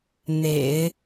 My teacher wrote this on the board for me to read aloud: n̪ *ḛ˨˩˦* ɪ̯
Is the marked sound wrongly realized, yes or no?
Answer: no